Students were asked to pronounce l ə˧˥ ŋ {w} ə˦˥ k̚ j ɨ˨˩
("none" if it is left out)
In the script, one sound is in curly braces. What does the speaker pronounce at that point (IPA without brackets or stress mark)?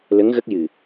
ɣ